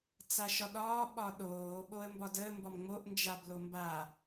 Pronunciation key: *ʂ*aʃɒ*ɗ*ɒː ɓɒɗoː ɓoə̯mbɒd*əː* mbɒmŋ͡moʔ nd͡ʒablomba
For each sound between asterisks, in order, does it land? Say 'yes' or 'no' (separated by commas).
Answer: no, yes, yes